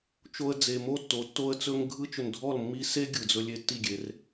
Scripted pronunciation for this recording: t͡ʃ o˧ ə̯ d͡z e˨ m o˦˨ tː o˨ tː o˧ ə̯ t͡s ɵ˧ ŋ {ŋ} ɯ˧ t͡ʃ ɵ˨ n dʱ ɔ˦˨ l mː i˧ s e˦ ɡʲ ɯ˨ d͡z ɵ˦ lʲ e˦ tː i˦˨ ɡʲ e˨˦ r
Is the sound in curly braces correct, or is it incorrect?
incorrect